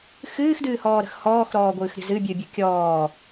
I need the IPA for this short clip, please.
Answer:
xɨːxdɨːhɔːɾə̤x hɔːxɾɔːɡʷɨːxɾʲə̤ zɨbʲɨbʲə kʲɔː

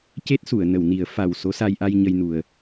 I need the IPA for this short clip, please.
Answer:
ce˦˥t̚su˨˩˨ə̯nə˨˩˨wni˨˩˦ə̯ fa˨˩w so˧˥sa˧jʔa˧j ɲə˧jnu˨˩ə̯

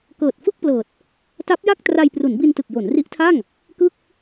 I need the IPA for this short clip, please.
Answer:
kɤː˨˩t̚fɯ˥˩k̚plɤː˨˩t̚ | ta˦˥p̚ja˥˩k̚ tra˧jpru˩˦nbi˧ntɯ˨˩k̚ jo˩˦nri˦˥ʔtʰa˥˩ŋ | kɯ˥˩k̚

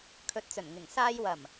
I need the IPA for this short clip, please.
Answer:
kʰɵ˨˥t̚t͡sɵ˨˩n ŋɪ˨˩ŋsaː˧j wɐ˨˩m

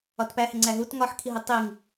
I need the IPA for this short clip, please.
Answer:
ɒtpæhe ŋ͡ǀæɦut ŋɒħkʰiɦi tˤiŋ

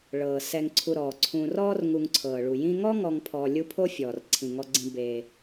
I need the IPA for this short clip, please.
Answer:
ɭɤː˩sɛ˨ŋ ǀʰu˨ɾɔː˩ǀʰũː˨ rɔː˥rŋu˨ŋǀʰɤː˩ɭu˩ jĩ˦ ŋɔ˥ŋɔ˨ŋ pʰɔː˨ lʲu˦pʰo˥fʲɔː˩r ǀʰĩ˩ŋɔ˨ɡ͡ǀĩ˨beː˩

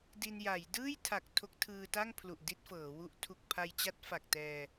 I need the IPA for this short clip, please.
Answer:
di˧nja˩˦j dɯː˥˩jtʰa˨˩k̚ tʰo˦˥k̚tʰɯː˧ta˥˩ŋpʰlu˨˩ʔ di˥˩t̚fɤː˩˦wu˦˥ʔ tʰu˨˩k̚pʰa˧jt͡ɕa˦˥t̚ fa˨˩k̚tɛː˧

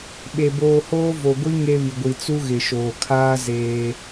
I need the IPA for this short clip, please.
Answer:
ɓe˨ boː˨hoː˦vo˨ ɡʷi˦ ŋe˦βi˨ɡʷi˨ t͡su˦ɣɪ˨ʃoː˨ kʰaː˦ zeː˦

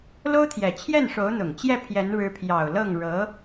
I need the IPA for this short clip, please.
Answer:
lo˥ʊ̯t̪ʰjɛ˨˩ t͡ɕʰjɛ˥˩nʂo˧˥ʊ̯n̪ʊ˨˩ŋt͡ɕjɛ˥˩ pʰjɛ˧˥n ɻɻ̩˧˥pʰjɑ˨˩ʊ̯ lɤ˥˩ŋɻɤ˧˥

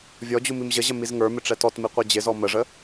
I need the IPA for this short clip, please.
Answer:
vʲɔd͡ʑu mimʑəʑə mizŋə˞mɪ ʈ͡ʂɛtɔtmi qʷɛd͡ʑɪzɔ məʐə

